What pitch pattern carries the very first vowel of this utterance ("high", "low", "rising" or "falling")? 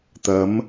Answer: rising